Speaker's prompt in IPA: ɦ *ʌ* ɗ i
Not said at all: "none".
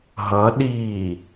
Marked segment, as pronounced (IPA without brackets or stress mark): ʌ